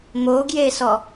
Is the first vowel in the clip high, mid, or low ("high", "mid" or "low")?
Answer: mid